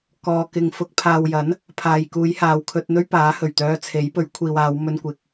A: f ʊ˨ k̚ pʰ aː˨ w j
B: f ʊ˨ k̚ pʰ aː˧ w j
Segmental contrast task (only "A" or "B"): A